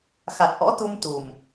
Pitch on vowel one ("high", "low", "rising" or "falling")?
low